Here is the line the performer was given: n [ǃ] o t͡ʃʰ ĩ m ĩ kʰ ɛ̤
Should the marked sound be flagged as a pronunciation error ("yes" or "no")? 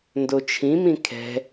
yes